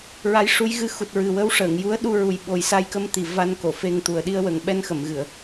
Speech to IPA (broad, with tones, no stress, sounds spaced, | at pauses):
ɹ a˧˥ j ʂ u˧˥ j ɣ ɨ˧˥ x u˨˩ t̚ ɹ ɨ˨˩ w ə˧˥ w ʂ əː˨˩˨ ŋ j u˧˥ ə̯ ɗ u˧ ɹ u˨˩ j ɓ o˨˩˦ j s a˧˥ j k ə˧˥ m t̪ i˨˩ v a˧ n k o˨˩˨ f e˧ ŋ t̪ u˨˩ ə̯ ɗ i˧ ə̯ w ə˨˩ ŋ ɓ ɛ˧ n x ə˨˩˨ m ɣ ɨ˨˩˨ ə̯